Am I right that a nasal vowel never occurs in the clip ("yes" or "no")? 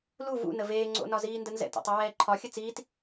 yes